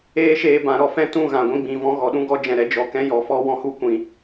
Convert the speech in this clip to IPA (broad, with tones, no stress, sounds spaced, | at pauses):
eː˦ ʃ eː˧ b ã˨ ɾ ɔ˧ f ɛ̃˦ t ũ˦˨ ɣ ã˨ ɡʷ ĩ˧ ɡ͡b ĩ˨ v ɔ̃˧ ɣ ɔ˨ ɗ ũ˦ ɡ ɔ˦ d͡ʒ ɛ̃˧ ɾ ɛ˦ d͡ʒ ɔ˧ k ɛ̃˦ j ɔ˨˦ f ɔ˦ w ɔ̃˦ h u˦ kʷ ĩ˧